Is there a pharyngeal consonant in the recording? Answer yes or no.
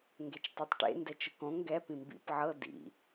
yes